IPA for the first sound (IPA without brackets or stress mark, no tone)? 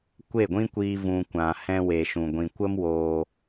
kʷ